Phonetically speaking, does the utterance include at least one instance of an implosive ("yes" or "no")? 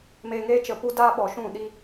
yes